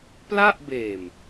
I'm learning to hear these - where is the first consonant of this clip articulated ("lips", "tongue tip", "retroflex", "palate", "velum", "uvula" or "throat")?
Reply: lips